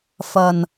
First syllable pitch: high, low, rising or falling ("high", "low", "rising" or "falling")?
low